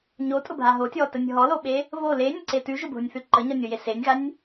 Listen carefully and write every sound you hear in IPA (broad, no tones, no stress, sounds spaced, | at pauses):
ɲ o tʼ ʊ bʱ a ɦ o tʲ ɔ t ə nʲ ɦ ɔ l o ɓ e | β o l e nʲ ə ǀ e t ʉ ʒ ʊ bʱ ʊ nʲ θ ʉ ǃ ə ɲ ɔ nʲ o j e s e nʲ ɣ a nʲ